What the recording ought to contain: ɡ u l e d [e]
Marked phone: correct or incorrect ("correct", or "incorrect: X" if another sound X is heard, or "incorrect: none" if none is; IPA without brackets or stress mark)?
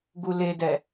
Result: incorrect: ɛ